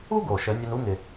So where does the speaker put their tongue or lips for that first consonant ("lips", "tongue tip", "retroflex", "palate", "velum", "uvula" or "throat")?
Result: velum